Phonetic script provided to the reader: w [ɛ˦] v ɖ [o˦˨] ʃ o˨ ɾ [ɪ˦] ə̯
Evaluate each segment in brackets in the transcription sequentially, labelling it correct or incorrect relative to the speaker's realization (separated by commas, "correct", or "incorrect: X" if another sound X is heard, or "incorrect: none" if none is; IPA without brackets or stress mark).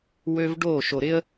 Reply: incorrect: ø˦, correct, correct